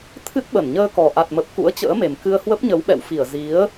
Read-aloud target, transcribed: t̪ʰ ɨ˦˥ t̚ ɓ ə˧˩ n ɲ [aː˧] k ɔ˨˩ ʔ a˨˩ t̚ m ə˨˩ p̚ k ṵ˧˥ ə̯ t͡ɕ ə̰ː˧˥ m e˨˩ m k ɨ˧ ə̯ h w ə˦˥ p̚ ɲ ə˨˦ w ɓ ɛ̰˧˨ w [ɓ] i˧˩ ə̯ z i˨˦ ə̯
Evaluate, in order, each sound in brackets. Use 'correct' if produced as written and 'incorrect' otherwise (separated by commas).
incorrect, incorrect